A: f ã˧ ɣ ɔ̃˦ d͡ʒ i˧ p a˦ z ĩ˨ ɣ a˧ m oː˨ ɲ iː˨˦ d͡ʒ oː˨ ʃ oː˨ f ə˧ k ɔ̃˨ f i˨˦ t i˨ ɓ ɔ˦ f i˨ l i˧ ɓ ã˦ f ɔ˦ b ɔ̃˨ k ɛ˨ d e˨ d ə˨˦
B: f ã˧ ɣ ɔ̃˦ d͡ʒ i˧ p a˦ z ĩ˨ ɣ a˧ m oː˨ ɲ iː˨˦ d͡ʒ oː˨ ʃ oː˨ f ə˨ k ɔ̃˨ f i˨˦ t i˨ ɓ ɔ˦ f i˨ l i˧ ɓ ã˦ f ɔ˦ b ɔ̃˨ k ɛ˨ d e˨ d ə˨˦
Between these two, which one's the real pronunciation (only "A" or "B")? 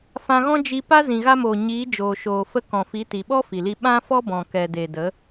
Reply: A